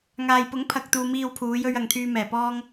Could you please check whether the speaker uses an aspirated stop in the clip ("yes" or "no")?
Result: yes